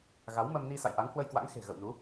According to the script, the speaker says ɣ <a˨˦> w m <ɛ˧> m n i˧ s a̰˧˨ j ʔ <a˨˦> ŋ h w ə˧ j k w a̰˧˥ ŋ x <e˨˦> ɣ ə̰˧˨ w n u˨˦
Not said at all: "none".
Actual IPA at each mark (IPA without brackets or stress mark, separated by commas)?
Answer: a˨˦, ə˧, a˨˦, e̤˨˩